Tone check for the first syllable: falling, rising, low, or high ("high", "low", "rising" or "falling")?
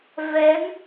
rising